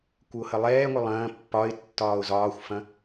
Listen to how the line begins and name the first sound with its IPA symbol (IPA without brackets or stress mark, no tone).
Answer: kʷ